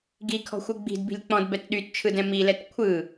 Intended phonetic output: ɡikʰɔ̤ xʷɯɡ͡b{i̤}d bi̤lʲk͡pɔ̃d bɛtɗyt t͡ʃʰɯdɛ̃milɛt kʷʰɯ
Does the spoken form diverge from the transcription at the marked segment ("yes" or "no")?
no